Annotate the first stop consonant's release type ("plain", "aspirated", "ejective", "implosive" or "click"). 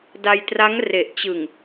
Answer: plain